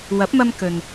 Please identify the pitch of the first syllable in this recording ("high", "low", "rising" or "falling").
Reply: rising